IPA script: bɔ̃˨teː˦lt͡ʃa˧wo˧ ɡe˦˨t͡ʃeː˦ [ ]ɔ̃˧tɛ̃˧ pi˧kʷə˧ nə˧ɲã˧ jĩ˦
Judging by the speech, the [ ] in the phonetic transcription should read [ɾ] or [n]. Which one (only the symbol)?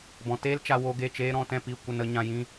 ɾ